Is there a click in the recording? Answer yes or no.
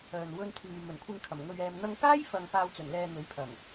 no